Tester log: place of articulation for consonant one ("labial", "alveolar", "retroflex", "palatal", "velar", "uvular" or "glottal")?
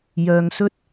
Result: palatal